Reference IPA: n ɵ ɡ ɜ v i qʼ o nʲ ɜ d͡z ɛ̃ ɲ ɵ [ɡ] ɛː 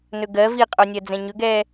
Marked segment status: correct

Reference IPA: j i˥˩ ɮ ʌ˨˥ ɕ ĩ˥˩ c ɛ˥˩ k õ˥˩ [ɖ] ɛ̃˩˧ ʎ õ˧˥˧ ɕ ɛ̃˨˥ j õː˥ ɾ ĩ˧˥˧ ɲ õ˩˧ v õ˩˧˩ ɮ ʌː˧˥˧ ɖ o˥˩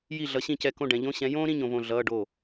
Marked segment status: correct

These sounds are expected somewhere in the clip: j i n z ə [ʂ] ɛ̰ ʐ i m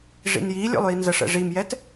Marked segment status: correct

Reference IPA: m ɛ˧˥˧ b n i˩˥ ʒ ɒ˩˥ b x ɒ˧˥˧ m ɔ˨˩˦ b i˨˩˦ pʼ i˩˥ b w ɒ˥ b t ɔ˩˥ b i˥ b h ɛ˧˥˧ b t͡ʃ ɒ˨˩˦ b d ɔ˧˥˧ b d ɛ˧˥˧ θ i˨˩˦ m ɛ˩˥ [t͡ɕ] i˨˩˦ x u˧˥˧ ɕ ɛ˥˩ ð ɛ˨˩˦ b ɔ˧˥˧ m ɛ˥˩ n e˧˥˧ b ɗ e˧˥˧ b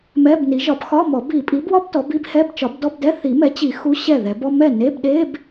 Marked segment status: correct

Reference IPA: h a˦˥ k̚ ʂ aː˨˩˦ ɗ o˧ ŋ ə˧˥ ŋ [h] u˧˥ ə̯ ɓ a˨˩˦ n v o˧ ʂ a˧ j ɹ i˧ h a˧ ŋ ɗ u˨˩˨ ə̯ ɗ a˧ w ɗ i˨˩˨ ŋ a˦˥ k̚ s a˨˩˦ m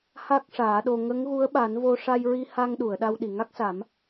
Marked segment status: incorrect: ɣ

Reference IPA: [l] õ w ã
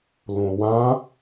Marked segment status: correct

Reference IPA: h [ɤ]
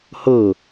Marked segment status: correct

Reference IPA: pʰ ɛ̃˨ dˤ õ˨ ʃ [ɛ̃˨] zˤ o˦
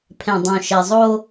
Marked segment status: incorrect: ɛ˨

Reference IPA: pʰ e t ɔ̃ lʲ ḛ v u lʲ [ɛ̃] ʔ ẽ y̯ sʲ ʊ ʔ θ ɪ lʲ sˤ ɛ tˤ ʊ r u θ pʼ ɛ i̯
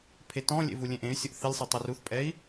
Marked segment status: incorrect: ẽ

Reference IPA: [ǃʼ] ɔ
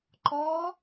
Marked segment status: incorrect: ǃ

